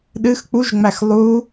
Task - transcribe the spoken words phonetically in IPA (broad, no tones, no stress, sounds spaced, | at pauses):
ɗ ɨ x k͡p u ʒ ŋ͡m æ x lˠ u